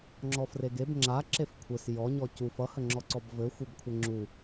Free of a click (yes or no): no